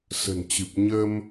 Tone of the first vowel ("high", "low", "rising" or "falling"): low